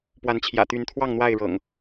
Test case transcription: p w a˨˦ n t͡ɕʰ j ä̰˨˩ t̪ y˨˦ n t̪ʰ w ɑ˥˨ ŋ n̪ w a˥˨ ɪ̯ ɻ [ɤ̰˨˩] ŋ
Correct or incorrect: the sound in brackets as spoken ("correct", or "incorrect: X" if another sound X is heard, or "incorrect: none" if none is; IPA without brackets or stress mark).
correct